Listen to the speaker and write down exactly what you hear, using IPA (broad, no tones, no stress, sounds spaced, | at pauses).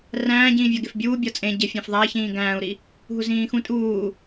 r æ̃ː ɟ ĩː vʲ ɒ ɡ e f bʲ uː bʲ ɒ t͡sʼ ẽ ɟ e fʲ æ̃ f ðˤ æ ç ĩː ɡ æ̃ː u̯ ɾ i | ɦ u z ĩː x ũ tʼ uː